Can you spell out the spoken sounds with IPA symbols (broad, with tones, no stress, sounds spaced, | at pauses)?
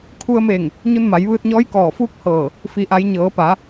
kʰ u˧ ə̯ m e˧˩ ŋ | ɲ u˧ n m a˩˧ j ʋ ɯː˧ t̚ ɲ ɔː˧˥ j k ɔː˧˩ f uː˥˨ k̚ h ɤː˧˩ | f i˩˧ ʔ a˩˧ j ɲ ɤː˩˧ p a˩˧